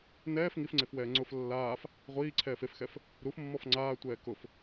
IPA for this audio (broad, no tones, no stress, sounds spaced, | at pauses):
n ɛː f ŋ i f ŋ͡ǀ e f w ɛː ŋ͡ǀ ʊ f lː aː f | ʁʷ iː ǀʰ ɛː f e f x ɛ f | ɾ u f mː ɔ f ŋ͡ǀ aː tʷ ɛː k ʊ f